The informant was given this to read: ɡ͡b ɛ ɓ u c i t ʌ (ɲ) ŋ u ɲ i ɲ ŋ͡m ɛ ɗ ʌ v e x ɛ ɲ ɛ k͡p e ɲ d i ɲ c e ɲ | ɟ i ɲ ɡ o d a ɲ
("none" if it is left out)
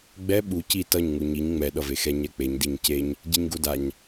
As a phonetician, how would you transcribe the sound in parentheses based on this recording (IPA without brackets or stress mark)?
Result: ɲ